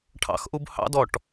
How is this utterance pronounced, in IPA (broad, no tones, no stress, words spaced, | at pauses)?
ʈʰɑ̰xʔub hɑ̰dɔʈ